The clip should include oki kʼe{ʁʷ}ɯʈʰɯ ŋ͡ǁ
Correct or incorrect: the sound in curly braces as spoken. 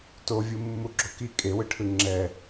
incorrect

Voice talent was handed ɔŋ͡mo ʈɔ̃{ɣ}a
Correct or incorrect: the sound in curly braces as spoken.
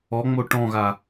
correct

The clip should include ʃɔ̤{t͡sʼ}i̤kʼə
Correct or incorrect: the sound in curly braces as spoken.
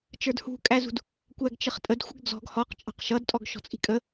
correct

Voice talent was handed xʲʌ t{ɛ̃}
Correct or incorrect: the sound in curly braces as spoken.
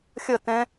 correct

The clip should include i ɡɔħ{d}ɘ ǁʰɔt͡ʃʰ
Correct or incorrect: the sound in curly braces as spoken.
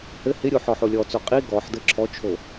correct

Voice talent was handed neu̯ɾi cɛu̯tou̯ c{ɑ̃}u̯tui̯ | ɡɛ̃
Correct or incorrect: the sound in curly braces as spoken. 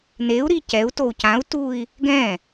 incorrect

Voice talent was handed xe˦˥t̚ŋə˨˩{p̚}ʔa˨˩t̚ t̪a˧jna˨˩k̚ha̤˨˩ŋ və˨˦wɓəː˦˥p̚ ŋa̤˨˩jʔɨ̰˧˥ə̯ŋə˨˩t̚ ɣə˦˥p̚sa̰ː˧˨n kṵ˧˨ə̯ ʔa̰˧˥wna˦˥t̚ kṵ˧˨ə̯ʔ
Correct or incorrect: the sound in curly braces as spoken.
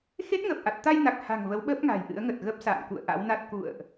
correct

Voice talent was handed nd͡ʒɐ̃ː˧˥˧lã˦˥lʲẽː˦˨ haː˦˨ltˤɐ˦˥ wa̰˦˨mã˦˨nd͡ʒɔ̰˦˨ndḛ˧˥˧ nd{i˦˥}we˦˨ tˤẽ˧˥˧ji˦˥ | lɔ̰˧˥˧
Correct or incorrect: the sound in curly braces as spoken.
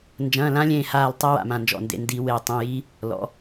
correct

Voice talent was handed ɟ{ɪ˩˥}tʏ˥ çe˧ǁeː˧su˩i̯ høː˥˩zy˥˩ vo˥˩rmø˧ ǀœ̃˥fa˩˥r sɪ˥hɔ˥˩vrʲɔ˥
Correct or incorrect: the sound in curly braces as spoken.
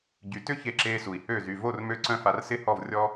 incorrect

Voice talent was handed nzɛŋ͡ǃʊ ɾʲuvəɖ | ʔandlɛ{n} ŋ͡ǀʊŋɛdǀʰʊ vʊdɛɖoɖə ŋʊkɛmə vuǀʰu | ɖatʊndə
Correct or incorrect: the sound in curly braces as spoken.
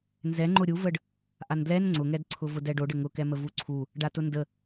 correct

